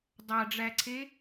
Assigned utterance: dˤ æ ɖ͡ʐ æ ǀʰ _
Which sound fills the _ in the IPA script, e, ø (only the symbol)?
e